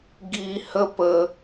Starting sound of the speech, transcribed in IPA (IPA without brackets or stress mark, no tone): ɡ